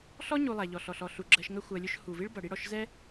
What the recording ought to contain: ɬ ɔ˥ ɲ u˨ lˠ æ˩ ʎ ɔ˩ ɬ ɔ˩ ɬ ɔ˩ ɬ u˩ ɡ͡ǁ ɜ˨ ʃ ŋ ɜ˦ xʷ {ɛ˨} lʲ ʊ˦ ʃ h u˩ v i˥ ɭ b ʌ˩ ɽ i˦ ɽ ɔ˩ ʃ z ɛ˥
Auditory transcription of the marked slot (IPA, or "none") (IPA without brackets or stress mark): ɜ˨